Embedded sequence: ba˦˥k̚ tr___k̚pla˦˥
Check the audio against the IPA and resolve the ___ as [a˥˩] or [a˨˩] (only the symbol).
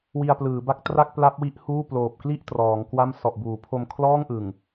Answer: a˥˩